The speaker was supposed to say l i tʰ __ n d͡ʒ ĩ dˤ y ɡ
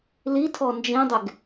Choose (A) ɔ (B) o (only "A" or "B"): A